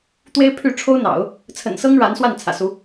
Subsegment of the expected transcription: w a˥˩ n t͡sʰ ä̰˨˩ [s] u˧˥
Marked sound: correct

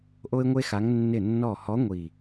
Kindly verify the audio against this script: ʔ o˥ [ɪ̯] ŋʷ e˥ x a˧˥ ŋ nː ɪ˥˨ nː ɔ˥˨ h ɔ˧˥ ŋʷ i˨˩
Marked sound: correct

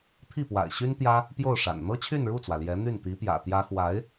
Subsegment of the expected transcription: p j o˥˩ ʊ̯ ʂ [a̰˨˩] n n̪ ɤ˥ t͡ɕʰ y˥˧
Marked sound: correct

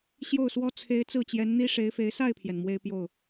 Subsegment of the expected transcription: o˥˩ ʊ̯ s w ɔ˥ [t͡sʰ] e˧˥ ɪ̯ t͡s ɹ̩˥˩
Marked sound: correct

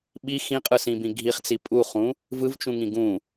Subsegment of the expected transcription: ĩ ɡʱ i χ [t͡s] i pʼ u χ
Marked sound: correct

